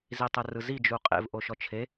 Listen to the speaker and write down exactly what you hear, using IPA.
z i tˤ ɛ r ɯ z i d͡ʒ u qʼ ḛ v ʔ o ʃ ɔ t͡ʃʰ e

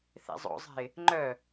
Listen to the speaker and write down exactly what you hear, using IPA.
θ ḛ zˤ o̰ zˤ ɛ̤ ɪ̯ | ŋ͡ǃ œ

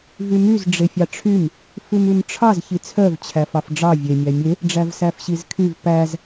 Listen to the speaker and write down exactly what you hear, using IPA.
v y m y z ɖ͡ʐ e fʲ ɑ ʈ͡ʂʰ y m | f ʉ m ʉ m ʈ͡ʂʰ ɑ z ç i t͡sʰ œ v t͡ɕʰ æ f ɑ f ɖ͡ʐ ɑ vʲ e mʲ æ mʲ e | ɖ͡ʐ æ v s æ f ɕ i z kʰ y v p æ z

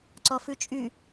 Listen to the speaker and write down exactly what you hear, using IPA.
ǀ ɔ f ʉ t͡ʃʼ y

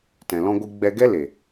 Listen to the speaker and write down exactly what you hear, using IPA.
t ɛ̃˨ l ɔ̃˧ ɡʷ ɨ˧ ɡ͡b ɛ˧ ɡ ɛ˦ l e˨

